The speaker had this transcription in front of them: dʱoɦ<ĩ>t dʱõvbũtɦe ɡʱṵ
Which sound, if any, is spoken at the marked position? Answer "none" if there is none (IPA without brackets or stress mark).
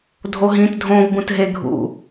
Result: ĩ